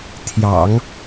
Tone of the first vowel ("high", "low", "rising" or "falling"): low